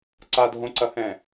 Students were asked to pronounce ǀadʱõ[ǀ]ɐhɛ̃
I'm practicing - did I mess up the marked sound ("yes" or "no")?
no